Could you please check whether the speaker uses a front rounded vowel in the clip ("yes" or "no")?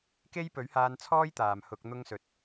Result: no